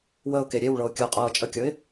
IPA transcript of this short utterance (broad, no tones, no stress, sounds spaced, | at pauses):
w ə ʊ̯ k e ɾʲ e w ɭ ɤ ʊ̯ kʲ ɤ ʊ̯ qʼ ɤː t͡ʃʼ ə kʲ ɤ ɪ̯